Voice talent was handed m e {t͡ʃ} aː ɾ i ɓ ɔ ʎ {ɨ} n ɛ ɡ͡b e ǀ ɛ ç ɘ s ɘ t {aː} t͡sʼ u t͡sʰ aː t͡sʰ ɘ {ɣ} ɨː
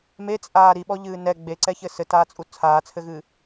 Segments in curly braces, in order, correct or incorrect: incorrect, incorrect, correct, correct

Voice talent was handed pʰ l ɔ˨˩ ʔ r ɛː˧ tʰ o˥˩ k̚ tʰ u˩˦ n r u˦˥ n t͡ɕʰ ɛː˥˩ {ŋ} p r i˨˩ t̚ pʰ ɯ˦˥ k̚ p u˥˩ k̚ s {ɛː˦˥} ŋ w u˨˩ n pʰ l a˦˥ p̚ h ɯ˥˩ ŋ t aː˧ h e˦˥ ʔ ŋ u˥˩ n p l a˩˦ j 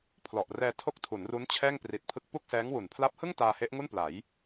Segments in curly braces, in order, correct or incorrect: correct, correct

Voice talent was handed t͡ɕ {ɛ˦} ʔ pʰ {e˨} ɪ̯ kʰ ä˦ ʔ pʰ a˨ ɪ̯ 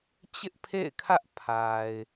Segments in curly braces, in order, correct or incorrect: incorrect, incorrect

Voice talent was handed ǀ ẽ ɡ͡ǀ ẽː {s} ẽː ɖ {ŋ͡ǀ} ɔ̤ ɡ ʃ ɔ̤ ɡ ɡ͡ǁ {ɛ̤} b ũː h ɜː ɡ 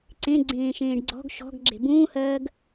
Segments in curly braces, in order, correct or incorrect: incorrect, incorrect, incorrect

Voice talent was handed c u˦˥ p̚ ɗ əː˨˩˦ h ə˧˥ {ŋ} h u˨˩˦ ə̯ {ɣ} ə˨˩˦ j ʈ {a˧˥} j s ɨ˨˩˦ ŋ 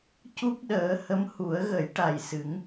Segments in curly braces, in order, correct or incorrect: incorrect, correct, incorrect

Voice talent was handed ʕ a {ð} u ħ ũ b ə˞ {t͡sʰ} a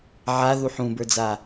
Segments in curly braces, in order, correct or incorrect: correct, incorrect

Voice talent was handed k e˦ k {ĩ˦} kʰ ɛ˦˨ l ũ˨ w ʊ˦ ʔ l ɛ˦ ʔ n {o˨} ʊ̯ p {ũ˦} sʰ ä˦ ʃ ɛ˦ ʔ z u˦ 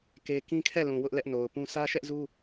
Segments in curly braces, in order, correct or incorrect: correct, correct, correct

